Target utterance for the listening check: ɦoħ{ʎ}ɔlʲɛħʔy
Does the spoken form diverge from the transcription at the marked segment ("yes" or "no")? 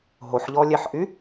no